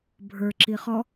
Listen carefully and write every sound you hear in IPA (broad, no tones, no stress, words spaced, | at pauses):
bʱə˞ ǁiχɔ